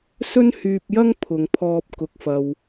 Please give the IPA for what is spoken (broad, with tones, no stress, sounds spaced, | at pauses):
s ɵ˥ n h yː˧ p̚ j ɐ˥ ŋ pʰ ʊ˨ ŋ pʰ ɔː˧ p̚ k ʊ˨˥ k̚ f ɐ˧ w